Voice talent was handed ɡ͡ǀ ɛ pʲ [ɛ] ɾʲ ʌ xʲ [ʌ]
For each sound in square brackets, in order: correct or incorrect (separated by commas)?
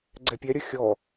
correct, incorrect